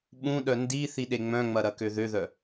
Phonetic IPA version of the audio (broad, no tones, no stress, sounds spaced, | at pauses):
ɓ ũ ɗ œ n d i θ i ɗ e ŋ͡m œ̃ ŋ͡m ɐ ɾ ɐ k ø ð ø ð œ